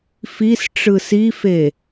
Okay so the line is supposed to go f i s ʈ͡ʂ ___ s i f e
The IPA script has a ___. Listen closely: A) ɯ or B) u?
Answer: A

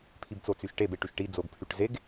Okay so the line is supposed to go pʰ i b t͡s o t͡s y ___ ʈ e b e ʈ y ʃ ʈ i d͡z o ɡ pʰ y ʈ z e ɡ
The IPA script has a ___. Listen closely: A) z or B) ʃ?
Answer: B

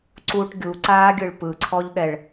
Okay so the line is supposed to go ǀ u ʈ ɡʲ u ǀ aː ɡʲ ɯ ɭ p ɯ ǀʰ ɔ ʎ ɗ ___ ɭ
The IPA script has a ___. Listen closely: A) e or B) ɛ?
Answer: B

